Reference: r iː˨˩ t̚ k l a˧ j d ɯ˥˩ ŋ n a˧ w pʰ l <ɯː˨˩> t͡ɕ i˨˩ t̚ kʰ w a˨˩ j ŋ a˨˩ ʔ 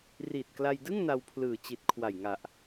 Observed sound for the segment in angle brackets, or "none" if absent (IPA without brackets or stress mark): ɯː˨˩